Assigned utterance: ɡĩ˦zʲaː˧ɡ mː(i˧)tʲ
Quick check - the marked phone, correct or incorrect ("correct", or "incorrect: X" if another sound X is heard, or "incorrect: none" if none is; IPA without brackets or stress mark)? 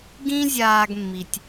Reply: correct